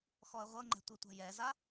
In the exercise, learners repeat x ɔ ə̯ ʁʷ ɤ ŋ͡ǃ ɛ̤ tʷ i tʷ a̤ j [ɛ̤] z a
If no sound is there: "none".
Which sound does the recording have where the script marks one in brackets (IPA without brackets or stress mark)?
ɛ